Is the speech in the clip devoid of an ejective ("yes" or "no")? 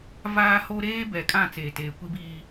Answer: no